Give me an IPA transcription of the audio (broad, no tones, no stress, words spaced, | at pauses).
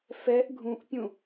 fɛʔ ɡʱũʔpʲũ